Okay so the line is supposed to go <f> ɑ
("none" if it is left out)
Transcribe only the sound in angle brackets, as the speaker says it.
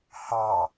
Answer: h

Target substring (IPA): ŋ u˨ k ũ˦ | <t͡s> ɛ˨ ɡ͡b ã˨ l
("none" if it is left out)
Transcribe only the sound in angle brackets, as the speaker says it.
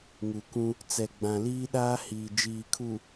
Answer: t͡s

